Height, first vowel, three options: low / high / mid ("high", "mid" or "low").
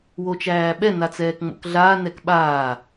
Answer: mid